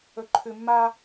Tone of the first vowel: low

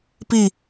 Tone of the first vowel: falling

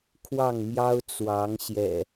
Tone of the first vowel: falling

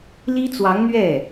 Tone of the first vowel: high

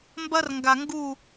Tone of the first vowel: high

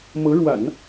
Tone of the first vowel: rising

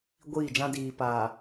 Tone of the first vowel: falling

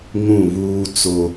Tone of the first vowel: falling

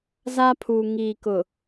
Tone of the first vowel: high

